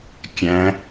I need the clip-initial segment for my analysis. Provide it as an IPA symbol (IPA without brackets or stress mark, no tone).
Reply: kʲ